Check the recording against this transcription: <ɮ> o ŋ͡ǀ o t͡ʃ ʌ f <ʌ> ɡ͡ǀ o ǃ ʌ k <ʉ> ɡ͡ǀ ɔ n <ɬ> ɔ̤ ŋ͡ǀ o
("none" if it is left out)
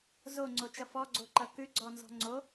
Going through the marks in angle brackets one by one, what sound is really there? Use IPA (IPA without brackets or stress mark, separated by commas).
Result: z, ɔ, ʉ, z